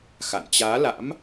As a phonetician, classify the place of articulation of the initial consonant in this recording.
velar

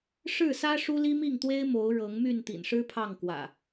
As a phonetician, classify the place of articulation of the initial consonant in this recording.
retroflex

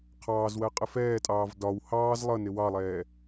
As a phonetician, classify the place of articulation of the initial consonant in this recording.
uvular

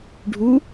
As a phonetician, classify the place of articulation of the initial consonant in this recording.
retroflex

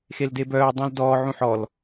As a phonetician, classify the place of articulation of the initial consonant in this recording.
velar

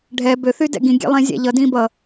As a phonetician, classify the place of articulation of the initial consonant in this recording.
retroflex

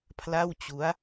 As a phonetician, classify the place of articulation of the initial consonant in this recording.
labial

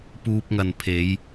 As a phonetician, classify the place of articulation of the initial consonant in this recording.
labial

